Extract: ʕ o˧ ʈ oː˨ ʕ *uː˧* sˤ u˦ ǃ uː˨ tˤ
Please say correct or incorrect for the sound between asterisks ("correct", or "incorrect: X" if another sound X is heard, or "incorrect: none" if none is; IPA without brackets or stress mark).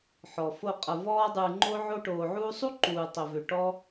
correct